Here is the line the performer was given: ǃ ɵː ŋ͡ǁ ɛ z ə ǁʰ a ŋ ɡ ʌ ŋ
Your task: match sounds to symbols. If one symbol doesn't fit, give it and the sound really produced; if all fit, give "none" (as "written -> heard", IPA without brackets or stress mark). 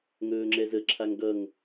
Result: ǃ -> ŋ